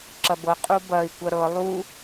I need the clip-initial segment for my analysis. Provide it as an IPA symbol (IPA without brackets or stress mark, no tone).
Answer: ǁ